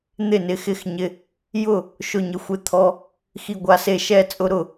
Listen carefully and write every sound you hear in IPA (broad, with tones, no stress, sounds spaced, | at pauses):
n̪ ɪ˥˩ n ɪ˧ x ɪ˥˩ x ɲ ɪ˧ | j ʊ˥˩ | ʃ ʊ˥˩ ɲ ɪ˧ xʷ ɪ˥˩ t̪ʰ ɔ˧ | x i˧ ɡʷ a˧ s e˥˩ ʃ ɛ˥˩ t͡sʼ ʊ˧ ɾ ʊ˥˩